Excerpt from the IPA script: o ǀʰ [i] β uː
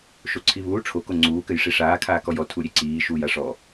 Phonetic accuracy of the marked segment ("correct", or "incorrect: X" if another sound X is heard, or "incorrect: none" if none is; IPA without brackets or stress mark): correct